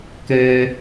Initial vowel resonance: oral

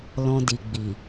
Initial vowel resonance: nasal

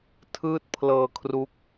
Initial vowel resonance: oral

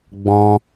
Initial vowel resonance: nasal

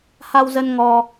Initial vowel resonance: oral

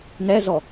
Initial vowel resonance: oral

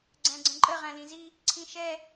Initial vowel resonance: nasal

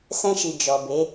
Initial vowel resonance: nasal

